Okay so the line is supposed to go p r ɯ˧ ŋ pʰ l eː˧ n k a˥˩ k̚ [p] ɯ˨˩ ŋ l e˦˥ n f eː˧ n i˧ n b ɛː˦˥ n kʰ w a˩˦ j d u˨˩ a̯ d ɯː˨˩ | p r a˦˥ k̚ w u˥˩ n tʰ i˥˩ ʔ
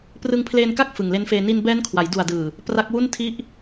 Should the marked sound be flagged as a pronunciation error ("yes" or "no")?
yes